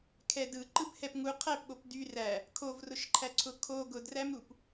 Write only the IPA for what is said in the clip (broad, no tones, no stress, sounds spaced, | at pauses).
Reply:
kʰ ɛ d ɯ ǃ ɯ b h ɛ p ŋ u qʰ æ p ɠ o p d y r æ | kʰ o v r ʊ ʃ ǃʰ æ ǀʰ ʊ kʰ o ɡ ʊ d r æ m ɾ u p